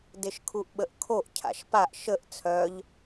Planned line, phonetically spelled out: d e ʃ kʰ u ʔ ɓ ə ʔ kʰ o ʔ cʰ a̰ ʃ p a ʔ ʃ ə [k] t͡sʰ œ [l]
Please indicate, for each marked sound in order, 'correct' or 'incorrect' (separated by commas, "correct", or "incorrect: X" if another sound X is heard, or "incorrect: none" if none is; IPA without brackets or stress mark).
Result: incorrect: ʔ, incorrect: ʎ